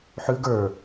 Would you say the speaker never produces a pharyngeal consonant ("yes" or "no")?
no